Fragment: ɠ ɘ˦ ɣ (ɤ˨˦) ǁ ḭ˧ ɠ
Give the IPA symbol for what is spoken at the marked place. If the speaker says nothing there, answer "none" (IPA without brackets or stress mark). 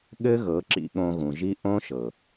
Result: ɤ˨˦